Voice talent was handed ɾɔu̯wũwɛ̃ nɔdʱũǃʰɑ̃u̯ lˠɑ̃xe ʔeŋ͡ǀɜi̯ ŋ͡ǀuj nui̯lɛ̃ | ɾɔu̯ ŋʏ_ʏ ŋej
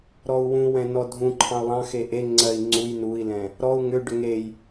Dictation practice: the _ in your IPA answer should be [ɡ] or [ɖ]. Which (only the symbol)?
ɖ